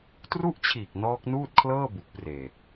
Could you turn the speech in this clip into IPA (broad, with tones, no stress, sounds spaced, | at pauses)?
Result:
t r u˥˩ ʔ t͡ɕʰ iː˨˩ k̚ n ɔː˦˥ k̚ n uː˥˩ t̚ kʰ l ɤː˥˩ b u˨˩ k̚ p r eː˨˩